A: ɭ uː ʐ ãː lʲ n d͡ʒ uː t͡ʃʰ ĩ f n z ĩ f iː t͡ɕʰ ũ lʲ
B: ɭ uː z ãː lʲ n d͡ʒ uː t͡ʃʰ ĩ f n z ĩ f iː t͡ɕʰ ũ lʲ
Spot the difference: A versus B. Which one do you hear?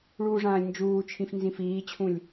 A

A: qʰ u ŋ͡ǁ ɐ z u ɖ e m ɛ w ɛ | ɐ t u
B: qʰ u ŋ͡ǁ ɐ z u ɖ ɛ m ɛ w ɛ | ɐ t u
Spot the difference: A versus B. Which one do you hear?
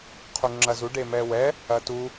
A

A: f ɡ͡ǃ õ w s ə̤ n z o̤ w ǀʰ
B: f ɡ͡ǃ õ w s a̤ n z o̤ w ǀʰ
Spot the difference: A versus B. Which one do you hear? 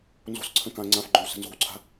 A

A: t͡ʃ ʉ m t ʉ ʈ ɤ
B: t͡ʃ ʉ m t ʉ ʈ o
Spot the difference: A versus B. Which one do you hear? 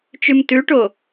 B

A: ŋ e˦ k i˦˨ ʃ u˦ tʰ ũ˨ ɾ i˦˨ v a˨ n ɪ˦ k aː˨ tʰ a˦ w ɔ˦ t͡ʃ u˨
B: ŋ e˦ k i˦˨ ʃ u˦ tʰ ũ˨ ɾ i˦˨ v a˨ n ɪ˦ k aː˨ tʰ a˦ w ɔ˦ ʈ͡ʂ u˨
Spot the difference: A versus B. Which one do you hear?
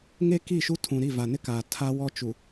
A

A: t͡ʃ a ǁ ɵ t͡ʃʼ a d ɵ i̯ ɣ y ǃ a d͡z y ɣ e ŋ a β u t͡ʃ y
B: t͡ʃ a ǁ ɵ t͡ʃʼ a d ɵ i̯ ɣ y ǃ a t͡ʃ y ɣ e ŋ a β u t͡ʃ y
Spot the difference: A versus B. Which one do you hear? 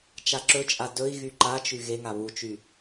B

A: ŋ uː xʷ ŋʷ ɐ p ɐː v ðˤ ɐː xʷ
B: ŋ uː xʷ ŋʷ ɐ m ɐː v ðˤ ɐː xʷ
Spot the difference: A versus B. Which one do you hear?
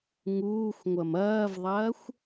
B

